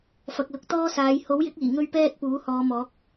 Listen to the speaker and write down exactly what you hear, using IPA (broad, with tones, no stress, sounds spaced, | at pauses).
f ɐ˨ k̚ l ʊ˨˥ k̚ t̪ ɔː˥ s aː˨˧ j h o˨˥ w j ɪ˨˥ k̚ iː˨˩ ŋ ɵ˥ ɥ p ɛː˥ t̚ p uː˨˥ h ɔː˨˧ m ɔː˨˥ k̚